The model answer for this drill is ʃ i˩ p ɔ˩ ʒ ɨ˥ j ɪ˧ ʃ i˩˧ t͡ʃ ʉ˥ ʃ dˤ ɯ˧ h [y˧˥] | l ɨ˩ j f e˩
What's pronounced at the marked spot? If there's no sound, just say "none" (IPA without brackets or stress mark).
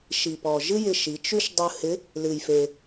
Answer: ɪ˧˥